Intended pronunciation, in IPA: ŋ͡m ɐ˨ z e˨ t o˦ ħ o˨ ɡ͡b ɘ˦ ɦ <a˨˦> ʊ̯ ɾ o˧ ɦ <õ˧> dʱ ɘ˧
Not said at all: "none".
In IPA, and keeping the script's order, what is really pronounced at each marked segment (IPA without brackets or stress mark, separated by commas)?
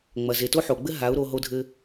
a˨˦, o˧